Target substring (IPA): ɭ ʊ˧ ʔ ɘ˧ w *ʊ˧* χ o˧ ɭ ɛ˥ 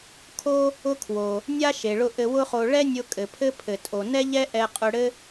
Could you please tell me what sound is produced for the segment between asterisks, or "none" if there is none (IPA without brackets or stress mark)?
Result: ʊ˥